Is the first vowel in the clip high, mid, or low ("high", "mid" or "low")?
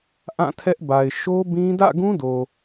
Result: low